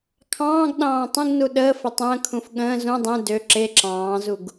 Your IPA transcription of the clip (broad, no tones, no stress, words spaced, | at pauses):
kʰɑ̃ːɡ ɗɑ̃ːtˤə̃ɡnu ɗəːfə tˤə̃ːkʰũf ɠə̃ː zũ dˤẽ dø ǁe ǁɑ̃ːzuɡ